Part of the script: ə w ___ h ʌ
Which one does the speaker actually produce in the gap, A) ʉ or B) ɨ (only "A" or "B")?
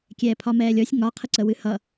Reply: B